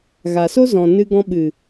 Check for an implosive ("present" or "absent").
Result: present